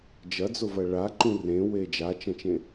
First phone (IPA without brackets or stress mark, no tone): d͡ʒ